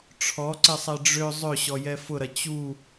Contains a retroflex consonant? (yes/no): yes